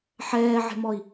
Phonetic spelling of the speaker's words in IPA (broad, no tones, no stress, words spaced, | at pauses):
ħɛːʕe̤mɔi̯